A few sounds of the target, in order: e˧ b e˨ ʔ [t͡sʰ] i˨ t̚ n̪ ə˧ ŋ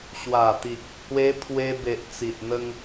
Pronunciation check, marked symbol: incorrect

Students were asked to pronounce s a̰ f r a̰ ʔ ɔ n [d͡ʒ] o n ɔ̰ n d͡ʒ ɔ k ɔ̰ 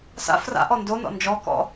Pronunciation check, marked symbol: incorrect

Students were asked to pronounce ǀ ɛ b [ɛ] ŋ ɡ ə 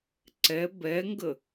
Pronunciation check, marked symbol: correct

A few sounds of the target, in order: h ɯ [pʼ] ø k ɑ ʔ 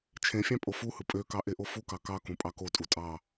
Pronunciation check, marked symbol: correct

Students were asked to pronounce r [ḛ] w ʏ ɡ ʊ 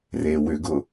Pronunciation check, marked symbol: incorrect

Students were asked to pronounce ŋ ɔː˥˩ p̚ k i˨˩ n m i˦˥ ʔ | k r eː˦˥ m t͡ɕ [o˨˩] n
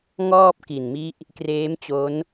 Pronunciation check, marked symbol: incorrect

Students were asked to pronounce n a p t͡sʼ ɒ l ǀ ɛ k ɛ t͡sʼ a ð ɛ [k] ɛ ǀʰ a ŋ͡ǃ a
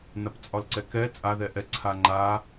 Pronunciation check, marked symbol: incorrect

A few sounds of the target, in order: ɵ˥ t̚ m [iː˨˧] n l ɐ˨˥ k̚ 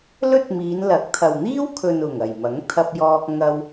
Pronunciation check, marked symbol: correct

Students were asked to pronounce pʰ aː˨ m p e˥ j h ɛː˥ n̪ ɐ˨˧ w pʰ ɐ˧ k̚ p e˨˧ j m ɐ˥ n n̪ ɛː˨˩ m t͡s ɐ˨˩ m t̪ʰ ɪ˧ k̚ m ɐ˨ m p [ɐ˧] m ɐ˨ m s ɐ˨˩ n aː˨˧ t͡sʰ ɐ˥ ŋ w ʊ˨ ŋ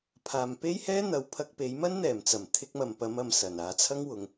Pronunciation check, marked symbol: incorrect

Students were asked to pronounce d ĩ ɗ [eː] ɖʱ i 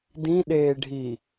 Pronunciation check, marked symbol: correct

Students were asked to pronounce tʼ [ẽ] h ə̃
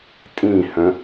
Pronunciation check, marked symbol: incorrect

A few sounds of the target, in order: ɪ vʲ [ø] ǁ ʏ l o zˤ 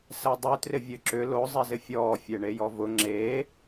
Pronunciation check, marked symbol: correct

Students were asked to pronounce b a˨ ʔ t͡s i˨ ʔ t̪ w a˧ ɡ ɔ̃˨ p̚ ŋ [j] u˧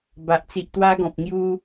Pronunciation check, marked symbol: correct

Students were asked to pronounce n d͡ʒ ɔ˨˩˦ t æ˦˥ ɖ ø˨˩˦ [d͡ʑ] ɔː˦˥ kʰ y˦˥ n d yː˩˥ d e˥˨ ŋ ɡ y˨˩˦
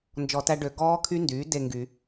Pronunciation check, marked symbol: incorrect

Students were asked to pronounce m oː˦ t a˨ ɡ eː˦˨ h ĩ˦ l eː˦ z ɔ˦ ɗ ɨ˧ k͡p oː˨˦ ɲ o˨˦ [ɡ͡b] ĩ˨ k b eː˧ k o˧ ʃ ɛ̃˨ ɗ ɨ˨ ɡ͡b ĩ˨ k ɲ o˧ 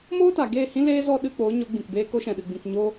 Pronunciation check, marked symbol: correct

